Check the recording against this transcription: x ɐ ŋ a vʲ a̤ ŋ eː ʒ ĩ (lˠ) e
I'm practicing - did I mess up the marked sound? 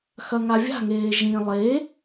no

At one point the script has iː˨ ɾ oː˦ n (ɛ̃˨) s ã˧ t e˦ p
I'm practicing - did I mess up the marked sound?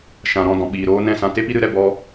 yes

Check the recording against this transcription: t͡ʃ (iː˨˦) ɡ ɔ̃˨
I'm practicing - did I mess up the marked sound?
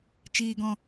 yes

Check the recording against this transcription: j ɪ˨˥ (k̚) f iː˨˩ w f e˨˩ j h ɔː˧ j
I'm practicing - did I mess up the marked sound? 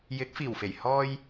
no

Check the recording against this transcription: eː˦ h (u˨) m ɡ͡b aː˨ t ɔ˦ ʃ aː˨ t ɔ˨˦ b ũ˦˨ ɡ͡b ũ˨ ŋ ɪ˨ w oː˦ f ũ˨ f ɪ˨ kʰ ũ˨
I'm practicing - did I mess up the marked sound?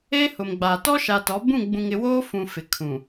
yes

